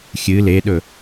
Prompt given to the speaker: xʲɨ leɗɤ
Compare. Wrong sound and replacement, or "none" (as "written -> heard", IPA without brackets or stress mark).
ɤ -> ɵ